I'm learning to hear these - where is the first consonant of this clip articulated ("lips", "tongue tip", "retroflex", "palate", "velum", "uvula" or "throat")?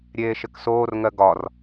tongue tip